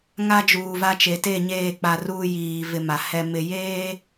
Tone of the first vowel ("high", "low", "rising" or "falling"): high